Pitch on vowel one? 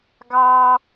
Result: high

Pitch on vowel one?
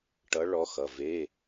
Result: rising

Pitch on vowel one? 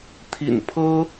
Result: low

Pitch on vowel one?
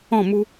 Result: falling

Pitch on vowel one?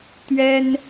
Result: high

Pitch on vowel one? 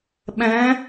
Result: rising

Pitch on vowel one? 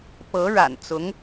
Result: rising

